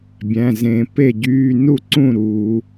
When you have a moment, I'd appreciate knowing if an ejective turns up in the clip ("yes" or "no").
no